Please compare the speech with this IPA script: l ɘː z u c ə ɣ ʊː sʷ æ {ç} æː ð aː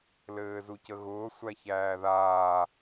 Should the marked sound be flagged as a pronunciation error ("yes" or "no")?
no